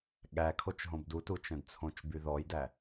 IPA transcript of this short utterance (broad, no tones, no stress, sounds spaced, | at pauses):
ɠ æ kʰ o t͡ʃ ɦ õ b d u t u t͡ʃ œ̃ d t͡sʰ õ t͡ʃ b y ð ɔ j d æ